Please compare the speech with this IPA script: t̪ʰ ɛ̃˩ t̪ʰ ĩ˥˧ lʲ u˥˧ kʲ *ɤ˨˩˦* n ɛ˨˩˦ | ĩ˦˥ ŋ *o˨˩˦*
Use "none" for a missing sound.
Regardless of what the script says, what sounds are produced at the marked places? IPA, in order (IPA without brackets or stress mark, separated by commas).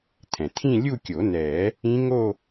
o˨˩˦, o˥˧